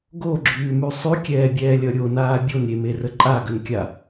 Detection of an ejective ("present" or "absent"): present